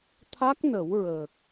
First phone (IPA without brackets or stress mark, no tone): t̪ʰ